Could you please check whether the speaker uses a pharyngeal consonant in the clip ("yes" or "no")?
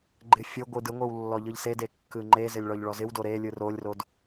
no